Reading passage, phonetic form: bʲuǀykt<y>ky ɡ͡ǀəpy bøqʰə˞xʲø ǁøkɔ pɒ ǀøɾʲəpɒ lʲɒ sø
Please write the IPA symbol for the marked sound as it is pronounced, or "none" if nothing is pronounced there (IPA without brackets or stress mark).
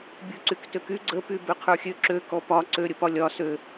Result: ø